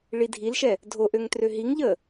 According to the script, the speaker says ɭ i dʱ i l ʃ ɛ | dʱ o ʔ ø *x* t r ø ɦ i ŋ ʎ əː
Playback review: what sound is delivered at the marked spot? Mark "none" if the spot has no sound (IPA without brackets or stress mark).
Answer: ŋ